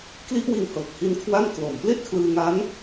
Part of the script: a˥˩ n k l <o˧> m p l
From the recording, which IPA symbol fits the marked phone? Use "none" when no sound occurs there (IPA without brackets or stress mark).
o˨˩